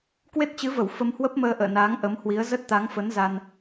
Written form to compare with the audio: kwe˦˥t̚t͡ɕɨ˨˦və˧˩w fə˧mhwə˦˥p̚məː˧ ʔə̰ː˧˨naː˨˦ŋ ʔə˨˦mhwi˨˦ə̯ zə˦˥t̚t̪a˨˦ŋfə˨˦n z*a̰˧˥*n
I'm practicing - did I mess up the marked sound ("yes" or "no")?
yes